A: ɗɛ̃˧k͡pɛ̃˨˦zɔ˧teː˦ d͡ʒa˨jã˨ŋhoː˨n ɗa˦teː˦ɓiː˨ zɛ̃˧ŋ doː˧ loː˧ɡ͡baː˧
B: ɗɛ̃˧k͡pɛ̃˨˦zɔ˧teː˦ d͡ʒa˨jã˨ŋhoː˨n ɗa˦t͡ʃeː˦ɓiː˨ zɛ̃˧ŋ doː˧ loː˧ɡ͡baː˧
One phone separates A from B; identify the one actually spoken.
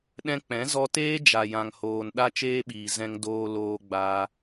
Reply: B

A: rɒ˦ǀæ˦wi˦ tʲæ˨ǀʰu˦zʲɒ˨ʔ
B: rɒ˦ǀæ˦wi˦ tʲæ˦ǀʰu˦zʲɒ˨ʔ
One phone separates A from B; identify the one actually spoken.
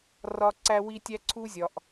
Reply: B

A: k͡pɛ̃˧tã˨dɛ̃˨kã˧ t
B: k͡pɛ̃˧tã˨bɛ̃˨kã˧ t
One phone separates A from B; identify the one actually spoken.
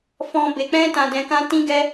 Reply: A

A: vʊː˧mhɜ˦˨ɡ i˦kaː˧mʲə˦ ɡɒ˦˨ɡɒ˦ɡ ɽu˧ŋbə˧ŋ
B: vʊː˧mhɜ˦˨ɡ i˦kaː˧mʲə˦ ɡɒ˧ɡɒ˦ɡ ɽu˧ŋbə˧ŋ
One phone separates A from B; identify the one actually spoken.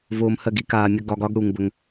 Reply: B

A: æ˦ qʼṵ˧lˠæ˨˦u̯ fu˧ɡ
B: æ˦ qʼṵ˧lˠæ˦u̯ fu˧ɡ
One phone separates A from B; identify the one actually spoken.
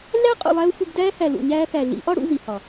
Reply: B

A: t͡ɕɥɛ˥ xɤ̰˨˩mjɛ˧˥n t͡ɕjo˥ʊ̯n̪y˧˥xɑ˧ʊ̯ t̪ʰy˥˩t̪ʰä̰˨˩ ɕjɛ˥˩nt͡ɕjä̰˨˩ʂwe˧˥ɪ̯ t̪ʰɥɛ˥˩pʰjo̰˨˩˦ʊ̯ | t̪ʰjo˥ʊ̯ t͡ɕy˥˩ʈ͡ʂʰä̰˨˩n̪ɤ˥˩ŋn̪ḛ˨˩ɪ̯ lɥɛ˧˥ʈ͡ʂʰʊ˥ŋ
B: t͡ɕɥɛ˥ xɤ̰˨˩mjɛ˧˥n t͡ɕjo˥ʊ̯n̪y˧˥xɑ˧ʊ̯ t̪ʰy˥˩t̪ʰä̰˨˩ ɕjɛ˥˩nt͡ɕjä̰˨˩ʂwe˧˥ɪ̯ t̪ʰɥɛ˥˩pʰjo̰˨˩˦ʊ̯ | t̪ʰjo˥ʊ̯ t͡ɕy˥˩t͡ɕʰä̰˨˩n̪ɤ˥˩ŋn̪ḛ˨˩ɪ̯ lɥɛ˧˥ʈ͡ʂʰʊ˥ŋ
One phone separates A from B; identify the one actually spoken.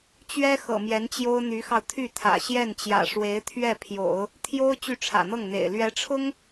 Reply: A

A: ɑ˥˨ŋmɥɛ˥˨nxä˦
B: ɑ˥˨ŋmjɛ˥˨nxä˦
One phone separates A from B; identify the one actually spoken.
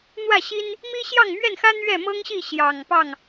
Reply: A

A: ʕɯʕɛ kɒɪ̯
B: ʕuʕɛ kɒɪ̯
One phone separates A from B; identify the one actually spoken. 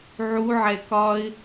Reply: B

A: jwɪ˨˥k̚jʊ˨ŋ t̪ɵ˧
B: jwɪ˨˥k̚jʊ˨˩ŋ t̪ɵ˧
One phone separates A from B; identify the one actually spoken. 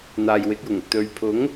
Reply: B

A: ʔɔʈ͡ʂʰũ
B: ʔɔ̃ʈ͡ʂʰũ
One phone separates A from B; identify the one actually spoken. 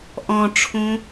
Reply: B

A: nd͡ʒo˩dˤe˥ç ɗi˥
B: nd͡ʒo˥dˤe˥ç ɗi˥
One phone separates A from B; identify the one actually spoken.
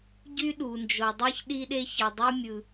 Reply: A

